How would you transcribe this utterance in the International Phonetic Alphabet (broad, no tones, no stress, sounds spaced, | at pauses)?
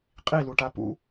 qʼ i l u ʈ a p ṵ